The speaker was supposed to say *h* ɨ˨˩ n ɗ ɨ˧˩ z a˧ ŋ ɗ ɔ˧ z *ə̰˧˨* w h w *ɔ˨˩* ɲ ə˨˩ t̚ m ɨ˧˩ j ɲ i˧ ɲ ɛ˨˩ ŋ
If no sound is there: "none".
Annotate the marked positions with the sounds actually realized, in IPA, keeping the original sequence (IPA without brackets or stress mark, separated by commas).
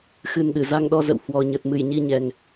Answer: x, ə̰˧˨, ɔ˨˩